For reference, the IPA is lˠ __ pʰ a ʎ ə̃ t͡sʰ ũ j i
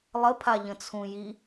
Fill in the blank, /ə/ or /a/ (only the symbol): ə